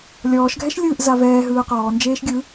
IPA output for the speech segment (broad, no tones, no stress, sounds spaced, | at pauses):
lʲ ɔː ʃ ɡʱ ɛ ʃ lʲ ɯː ʔ z a v ɛː ɦ ɯː q ɔː n d͡ʒ eː ʃ ɡʲ ɯ